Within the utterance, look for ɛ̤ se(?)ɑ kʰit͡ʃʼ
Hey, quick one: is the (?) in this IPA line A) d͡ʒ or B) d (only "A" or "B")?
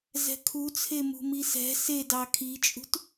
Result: B